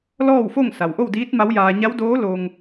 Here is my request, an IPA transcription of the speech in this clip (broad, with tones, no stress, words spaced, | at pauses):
lɔː˥˨wfo˥˨ŋ sa˩wʔo˥˨wdiː˧˥t̚ ma˧˥wjaː˧ ɲa˧˥w doː˧˥ loː˧ŋ